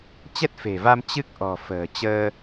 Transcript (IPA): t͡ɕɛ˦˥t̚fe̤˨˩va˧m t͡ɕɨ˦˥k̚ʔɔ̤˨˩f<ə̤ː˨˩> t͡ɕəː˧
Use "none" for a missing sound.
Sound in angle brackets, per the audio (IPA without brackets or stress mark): ə̤ː˨˩